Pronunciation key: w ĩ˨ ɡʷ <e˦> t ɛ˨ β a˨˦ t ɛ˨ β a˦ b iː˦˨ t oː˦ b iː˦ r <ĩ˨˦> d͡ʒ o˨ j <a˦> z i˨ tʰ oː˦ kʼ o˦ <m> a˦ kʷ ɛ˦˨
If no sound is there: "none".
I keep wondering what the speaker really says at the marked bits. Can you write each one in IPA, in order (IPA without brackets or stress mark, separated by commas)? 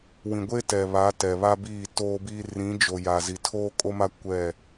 e˦, ĩ˨˦, a˨, m